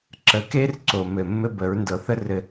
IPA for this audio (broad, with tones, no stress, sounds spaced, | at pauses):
ǁ ə˨ k e˦ r ǀ o˨ m ɘ˨ mː ɘ˦ b ə˨˦ ɹ n d ɤ˨ θ ə˦ r ɘ˨